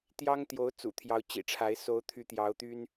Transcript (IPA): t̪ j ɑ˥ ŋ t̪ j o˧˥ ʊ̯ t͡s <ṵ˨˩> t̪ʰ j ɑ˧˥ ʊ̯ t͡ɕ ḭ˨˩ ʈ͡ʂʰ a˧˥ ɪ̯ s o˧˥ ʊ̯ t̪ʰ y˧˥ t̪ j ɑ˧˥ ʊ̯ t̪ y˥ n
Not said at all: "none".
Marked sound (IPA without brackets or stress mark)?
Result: ṵ˨˩